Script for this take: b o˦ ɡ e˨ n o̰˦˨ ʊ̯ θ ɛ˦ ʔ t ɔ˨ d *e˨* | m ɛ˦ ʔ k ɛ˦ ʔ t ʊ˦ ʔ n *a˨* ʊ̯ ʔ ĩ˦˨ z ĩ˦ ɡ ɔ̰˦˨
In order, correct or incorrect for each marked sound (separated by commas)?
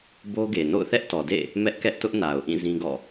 incorrect, correct